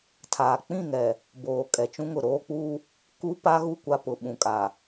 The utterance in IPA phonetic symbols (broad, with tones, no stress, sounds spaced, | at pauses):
tʰ aː˨ k͡p ĩ˦˨ ŋ ɛ˨ | b oː˨ kʼ ɛ˨ t͡ʃ ũ˦ ŋ ʊ˨ ɾ oː˦ k͡p u˦ | k u˦ p a˦ ɣ u˦˨ kʷ a˦ p ʊ˨ ɓ ũ˨ kʼ a˨